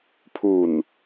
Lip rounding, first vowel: rounded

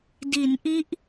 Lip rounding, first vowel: unrounded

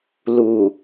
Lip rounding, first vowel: rounded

